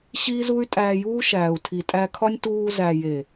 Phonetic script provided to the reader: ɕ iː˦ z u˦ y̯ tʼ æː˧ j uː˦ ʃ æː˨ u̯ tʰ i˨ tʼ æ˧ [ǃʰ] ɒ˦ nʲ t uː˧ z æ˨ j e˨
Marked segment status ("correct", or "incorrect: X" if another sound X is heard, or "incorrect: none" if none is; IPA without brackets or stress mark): incorrect: kʰ